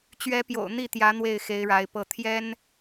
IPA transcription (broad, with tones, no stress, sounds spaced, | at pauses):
t͡ɕ ɥ ɛ˧˥ p j o̰˨˩ ʊ̯ n̪ i˥˩ t̪ j ä˧˥ n̪ w e˥˩ ɪ̯ x e˧˥ ɪ̯ ɻ a˧˥ ɪ̯ p ɤ˥˩ t̪ʰ j ɛ˥ n